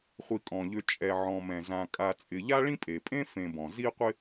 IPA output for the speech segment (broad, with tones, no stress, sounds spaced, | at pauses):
χʷ i˨ kʼ ɔ̃˩ ʎ ø˨ t͡ʃʼ ɛ˨ ʕ ɔ̃˨ m ɛ̃˩ z ã˨ kʼ a˨ t͡sʼ ɪ˨ ʎ a˥ ɭ ĩ˥ pʼ e˩ pʼ ẽ˥ f ẽ˨ b ɔ̃˩ z i˦ qʷ ɪ˦